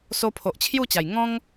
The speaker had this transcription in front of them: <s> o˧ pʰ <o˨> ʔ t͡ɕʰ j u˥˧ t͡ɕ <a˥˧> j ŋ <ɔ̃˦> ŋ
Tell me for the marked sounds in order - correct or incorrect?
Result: correct, correct, incorrect: a˨˩, correct

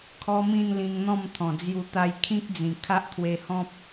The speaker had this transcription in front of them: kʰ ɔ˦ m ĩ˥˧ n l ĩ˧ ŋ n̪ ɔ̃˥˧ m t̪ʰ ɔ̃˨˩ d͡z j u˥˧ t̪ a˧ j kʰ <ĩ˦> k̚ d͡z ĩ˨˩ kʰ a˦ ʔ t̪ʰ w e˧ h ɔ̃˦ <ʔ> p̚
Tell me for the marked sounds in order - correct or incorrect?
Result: correct, incorrect: none

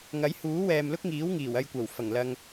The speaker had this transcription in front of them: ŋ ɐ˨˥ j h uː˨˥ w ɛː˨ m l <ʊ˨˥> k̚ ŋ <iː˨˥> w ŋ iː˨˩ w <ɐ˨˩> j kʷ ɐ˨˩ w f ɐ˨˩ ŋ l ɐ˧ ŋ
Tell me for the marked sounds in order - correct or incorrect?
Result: incorrect: ʊ˥, correct, incorrect: ɐ˧

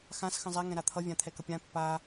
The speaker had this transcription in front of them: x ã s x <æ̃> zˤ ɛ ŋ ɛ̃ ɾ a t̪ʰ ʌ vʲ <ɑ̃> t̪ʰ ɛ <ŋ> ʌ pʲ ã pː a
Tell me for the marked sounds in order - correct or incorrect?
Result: incorrect: ə̃, incorrect: ã, incorrect: k

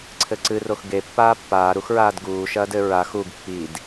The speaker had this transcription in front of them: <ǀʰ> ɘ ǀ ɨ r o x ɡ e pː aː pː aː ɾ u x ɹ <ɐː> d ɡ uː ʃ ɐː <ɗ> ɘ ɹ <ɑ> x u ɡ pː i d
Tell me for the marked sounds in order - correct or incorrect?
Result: correct, incorrect: aː, incorrect: d, incorrect: a

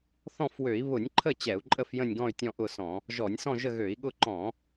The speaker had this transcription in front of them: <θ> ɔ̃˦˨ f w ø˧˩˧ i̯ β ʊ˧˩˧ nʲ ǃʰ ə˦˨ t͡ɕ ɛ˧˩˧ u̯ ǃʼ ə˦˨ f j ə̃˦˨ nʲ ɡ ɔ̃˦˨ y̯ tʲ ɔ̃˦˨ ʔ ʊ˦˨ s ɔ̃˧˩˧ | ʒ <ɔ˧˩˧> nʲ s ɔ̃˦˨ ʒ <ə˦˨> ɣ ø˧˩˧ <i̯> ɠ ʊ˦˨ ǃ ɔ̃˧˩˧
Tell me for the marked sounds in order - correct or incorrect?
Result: correct, correct, correct, correct

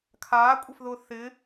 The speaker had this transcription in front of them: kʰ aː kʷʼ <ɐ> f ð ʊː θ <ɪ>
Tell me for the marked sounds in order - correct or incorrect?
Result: correct, correct

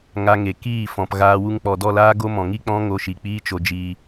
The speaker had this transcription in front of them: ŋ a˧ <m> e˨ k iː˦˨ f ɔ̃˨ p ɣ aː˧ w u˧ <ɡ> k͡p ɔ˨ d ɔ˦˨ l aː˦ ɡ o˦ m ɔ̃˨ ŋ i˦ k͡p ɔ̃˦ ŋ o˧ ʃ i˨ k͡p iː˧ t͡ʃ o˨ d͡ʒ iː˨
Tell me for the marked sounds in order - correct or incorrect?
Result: incorrect: ŋ, incorrect: ŋ

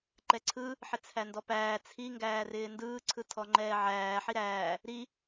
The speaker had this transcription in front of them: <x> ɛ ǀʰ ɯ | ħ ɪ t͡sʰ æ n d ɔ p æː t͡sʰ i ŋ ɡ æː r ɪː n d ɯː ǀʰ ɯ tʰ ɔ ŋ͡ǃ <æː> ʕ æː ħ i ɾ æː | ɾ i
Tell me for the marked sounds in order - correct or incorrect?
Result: incorrect: ǃ, incorrect: ɛː

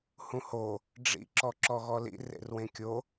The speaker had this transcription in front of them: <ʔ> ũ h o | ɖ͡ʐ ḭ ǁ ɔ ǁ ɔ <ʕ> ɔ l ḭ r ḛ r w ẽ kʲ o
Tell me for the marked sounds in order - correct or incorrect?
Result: incorrect: h, incorrect: ɣ

